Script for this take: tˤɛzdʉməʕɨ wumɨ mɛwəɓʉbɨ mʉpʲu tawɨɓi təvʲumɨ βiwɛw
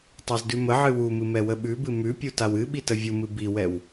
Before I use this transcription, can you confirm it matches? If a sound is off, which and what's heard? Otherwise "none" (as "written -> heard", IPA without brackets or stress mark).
β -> b